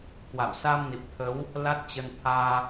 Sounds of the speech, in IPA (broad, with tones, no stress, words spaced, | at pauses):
kwa̰˧˨w sa˧mni˨˩p̚t̪ʰə˨˦w | la˦˥t̚t͡ɕə˧n t̪ʰaː˧